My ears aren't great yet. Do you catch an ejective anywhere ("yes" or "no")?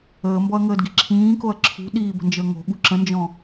no